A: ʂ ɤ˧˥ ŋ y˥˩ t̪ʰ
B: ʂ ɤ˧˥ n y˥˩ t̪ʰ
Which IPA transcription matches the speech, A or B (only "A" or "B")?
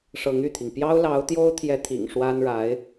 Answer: A